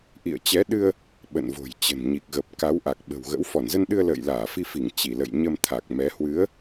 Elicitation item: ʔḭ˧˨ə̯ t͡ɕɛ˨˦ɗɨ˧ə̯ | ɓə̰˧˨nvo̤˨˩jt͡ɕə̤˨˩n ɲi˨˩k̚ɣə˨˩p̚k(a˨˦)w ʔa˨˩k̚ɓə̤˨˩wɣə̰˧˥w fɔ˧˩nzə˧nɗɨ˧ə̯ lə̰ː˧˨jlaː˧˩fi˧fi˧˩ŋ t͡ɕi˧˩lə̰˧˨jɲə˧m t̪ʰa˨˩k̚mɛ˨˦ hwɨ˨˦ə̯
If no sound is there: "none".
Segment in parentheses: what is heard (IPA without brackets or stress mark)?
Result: a˨˦